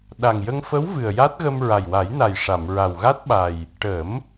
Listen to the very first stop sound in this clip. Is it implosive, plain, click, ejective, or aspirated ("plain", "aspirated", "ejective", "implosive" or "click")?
implosive